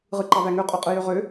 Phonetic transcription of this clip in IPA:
ʁɯǃɑvæŋø qʼoqʼɯjøʁø

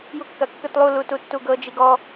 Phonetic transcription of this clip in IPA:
jukːɐkːɯtlˠu lututːuɡɤ d͡ʒiɡɔ

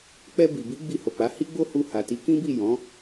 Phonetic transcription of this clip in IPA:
k͡pɛ˧bi˨bi˨˦ ɡ͡bi˧ho˨k͡pa˨˦ hi˦ɡ͡bo˦hu˧ha˨ ti˨˦kĩ˦bi˦˨ jɔ̃˨˦

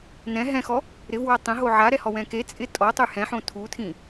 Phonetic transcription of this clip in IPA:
nɛ̃ ɦɛ̃xɔ | ɾɪvwa tˤɛ̃ɦo ʕaɾɛhɔwɛ̃ ke t͡sʼɪ tʼɔtˤʊy̯ hɛ̃ħõ tʰutʰĩ

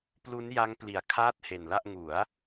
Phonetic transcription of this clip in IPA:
plu˦˥nja˦˥ŋ pli˨˩a̯kʰaː˥˩t̚he˨˩nla˥˩ʔ ŋu˩˦a̯

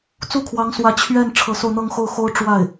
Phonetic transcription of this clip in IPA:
t͡su˥˩kʰwɑ˧˥ŋswä˧˥ t͡ɕʰɥɛ˥˩n ʈ͡ʂʰɤ˧˥so˧ʊ̯n̪ɤ˥˧ŋ xo˥˩ʊ̯xo˥ʊ̯ ʈ͡ʂwa˥˩ɪ̯

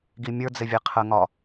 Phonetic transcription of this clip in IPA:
ɡimʲə˞d͡zɪvʲe qʰəŋɒ

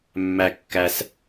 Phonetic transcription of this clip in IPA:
mːæ˨kːæ˨s

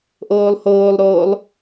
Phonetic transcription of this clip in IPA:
ʔoːlˠhoːlˠɾoːlˠ

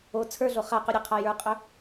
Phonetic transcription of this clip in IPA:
o t͡sʰə˞ɮo χaqʊ ɾʲəqʰa jə˞qʼœ

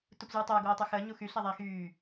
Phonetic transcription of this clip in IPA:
tupzyːtˤou̯ ɡoːtˤyxəː ɲuxy ɬɛðˤɛi̯xyː

